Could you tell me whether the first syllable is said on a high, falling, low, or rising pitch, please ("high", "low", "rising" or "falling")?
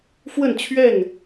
falling